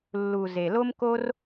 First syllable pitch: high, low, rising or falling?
low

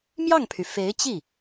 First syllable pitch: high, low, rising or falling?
falling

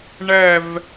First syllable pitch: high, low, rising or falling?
falling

